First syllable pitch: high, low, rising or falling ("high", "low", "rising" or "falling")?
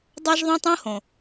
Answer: high